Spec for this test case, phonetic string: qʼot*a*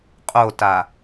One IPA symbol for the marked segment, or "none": a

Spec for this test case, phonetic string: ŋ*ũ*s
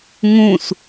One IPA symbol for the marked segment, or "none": ũ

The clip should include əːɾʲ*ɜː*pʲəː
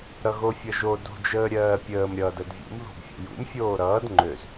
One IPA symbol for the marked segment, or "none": ɜː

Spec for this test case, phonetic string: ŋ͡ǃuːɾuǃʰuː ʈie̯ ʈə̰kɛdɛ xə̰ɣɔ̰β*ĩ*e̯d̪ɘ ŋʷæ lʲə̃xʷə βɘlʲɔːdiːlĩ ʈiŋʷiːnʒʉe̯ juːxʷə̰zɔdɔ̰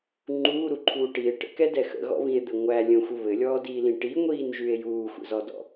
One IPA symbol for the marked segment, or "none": ĩ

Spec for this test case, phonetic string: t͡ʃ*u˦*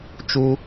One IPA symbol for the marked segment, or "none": u˦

